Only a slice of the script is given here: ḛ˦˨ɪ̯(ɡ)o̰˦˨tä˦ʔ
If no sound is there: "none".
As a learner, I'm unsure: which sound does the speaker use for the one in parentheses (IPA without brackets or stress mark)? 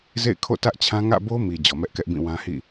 kʰ